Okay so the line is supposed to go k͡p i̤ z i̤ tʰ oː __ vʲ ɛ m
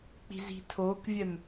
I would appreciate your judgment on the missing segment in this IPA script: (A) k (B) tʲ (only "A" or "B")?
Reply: A